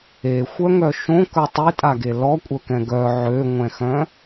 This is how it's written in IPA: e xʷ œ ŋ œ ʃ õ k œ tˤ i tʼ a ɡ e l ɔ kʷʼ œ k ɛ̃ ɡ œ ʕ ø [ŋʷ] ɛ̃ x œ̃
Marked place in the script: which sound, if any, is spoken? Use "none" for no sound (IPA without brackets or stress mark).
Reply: ŋʷ